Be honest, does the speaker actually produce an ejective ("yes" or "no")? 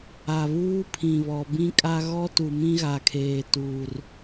yes